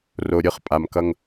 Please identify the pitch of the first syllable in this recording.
low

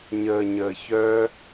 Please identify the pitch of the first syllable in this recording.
low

